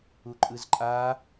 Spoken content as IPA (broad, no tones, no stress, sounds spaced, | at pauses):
u ǃʼ ɯ z ǃʼ aː